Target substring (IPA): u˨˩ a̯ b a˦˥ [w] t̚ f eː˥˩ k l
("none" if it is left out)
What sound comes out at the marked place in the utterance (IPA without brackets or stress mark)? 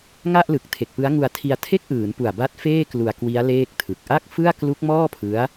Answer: none